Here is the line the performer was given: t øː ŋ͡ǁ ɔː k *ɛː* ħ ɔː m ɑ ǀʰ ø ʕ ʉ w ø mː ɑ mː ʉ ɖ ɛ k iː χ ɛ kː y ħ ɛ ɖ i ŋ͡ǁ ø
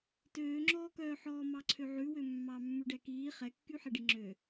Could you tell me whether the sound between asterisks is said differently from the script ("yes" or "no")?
yes